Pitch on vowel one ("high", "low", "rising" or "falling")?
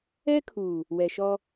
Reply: high